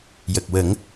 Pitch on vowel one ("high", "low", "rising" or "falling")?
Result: low